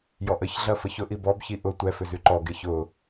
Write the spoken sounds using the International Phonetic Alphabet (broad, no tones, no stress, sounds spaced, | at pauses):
j ɔ ʔ ə ç ɮ ɐ f ə ç ʊ ʔ i b ɔ b ç i ʔ ʊ tʷ ɛ f ʏ z y ǃ ɔ ɡ e ç ʊ